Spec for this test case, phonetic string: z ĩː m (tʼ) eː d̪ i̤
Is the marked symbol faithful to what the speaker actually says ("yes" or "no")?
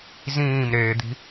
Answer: no